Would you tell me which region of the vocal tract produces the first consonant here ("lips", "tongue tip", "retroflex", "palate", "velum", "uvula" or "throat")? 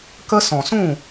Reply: velum